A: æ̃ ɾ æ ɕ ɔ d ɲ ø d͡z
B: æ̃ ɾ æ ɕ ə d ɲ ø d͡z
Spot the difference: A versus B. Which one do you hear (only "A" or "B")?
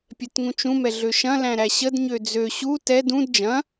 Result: B